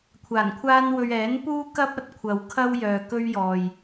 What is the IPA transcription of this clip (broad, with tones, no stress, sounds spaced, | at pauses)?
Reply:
kʷʰ aː˨˩ n kʷʰ aː˥ n w ɵ˧ ɥ ɛː˨˥ n p uː˥ k ɐ˥ p̚ ɐ˨ t̚ kʷʰ ɐ˨ w kʰ ɐ˥ w j œː˨ k ɵ˥ ɥ j ɔː˨ j